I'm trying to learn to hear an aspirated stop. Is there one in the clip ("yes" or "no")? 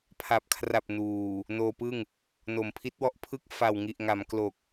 yes